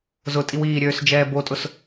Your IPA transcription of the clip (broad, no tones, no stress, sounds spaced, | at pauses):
z ʊ tʼ i w iː ɾʲ øː s d͡ʒ ɛː b o tʼ ʊ s